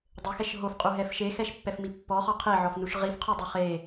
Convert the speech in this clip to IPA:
dˤ ɘ x ɛ ʃ ɦ o f qʼ u ɦ ɛ f ʃ e x ɛ ʃ pː ɛ f m i pː ɔ χ ɔ qʰ e ʕ ɔ f n u ʃ ʁ i f qʰ o dˤ i χ e

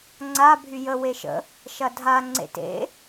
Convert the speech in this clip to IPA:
ŋ͡ǀ a bʱ y j ə w e ʃ ə̰ | ʃ ɐ dʱ a ŋ͡ǀ ḛ t ḛ

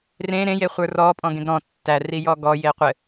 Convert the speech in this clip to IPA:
r ẽ ɾ ẽ j e χʷ ə˞ r ɔ pʼ ɔ̃ ɡ ẽ ɡ ɾ ɔ̃ tː æ r i j ɔ ɡ ɔ j e qʷ ɘ

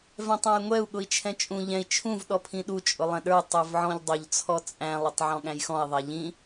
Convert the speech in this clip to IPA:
v ɛ̃ tˤ ɑ̃ j ŋʷ ɛ u̯ ɠ ʊ i̯ t͡ʃʰ ɛ̃ t͡ʃʼ ũ ʎ ɛ̃ i̯ t͡ʃʰ ũ v ɗ ɔ pʰ ĩ ɗ u t͡ʃʼ ʊ lˠ ɛ̃ ɗ ə˞ tˤ ə˞ v ʕ ɔ̃ ʎ dˤ ʊ ʎ t͡sʰ ɔ t͡sʼ æ̃ lˠ ʊ tˤ ʕ ɔ̃ ɠ æ̃ j x ɔ̃ i̯ ðˤ ɛ ʎ ĩ

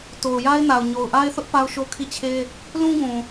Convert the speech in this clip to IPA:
t o˨ ʊ̯ j a˦ ɪ̯ n a˨ ʊ̯ ɲ o˨ ʊ̯ ʔ a˦ ɪ̯ θ ʊ˦ ʔ p a˦ ʊ̯ ʃ o˦ kʰ i˦˨ t͡ɕʰ e˦ | l ũ˦ ɡ ũ˨

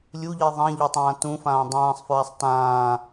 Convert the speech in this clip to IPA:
lʲ u ʎ i ðˤ ã ʎ ɤ tˤ ãː t ũ f ãː dˤ ãː sˤ f ɹ a sˤ t ãː

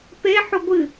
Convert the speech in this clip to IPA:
p e ħ u ɡʷ ɨ

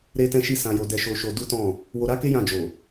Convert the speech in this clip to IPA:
ɾ e˦ t ɛ̃˦ ʃ i˦ s ã˧ j o˧ d ɛ˧ ʃ o˧ ʃ o˧ d u˦ t ɔ̃˦˨ | w o˧ ɾ a˦ k e˦ j ã˦˨ d͡ʒ o˨

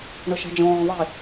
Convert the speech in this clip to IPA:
ɳ ʊ ʃ ɑ̤ d͡ʒ ɔ̃ː ðˤ i

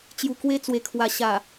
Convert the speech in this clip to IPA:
t͡ɕ j u˧ k w e˥˧ t͡s w e˧ kʰ w a˧ ɕ a˨˩

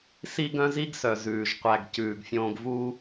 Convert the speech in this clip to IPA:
s i˦ ɡ œ̃˦ z i˦ ɡ s œ˩ z ʉː˩ ʒ qʷ æ˨ ɡ c ʉː˩ ɡ fʲ õː˨ ɡ v u˦

